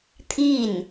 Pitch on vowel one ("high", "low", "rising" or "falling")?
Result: falling